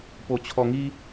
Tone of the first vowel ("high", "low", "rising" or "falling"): low